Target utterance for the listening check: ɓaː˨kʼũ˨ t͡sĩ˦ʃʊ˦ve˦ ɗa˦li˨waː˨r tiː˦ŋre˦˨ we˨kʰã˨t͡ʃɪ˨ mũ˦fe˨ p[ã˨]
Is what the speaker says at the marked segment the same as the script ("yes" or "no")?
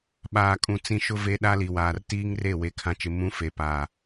no